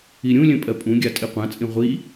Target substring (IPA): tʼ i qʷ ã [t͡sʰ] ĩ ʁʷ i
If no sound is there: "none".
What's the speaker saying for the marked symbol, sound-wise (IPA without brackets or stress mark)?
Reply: t͡sʼ